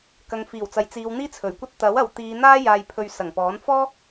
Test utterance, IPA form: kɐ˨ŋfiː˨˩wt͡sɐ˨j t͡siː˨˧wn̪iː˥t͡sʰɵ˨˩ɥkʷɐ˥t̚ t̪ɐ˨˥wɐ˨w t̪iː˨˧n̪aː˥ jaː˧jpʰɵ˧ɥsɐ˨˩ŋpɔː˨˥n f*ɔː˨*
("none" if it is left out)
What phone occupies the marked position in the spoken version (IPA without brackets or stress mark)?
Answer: ɔː˥